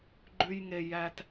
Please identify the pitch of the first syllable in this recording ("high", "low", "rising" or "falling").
low